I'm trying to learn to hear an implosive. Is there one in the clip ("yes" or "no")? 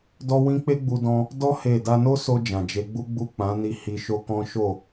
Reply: no